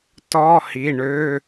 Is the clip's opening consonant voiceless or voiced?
voiceless